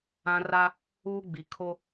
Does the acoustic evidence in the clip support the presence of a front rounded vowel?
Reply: no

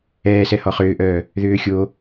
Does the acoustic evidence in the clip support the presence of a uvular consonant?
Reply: yes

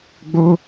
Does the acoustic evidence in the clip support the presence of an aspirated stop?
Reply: no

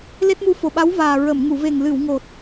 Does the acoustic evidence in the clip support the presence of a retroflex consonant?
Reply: no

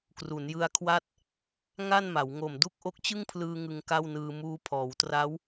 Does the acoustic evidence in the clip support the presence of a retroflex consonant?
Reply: no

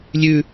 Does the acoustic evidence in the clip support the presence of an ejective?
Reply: no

